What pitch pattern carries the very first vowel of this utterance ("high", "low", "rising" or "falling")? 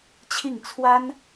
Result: falling